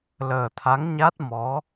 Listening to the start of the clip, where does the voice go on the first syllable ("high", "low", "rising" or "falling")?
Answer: low